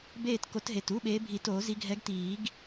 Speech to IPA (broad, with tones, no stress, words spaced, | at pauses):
beː˥˨t ko˨˦tɦe˨˩tu˧˥˧ɓeː˨˦ bʱi˨˩˦to˨˩˦zi˨˦ ɡʱɛ˨˦ɡ tiː˨˩˦ɡ